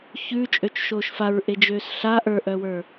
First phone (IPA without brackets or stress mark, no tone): ç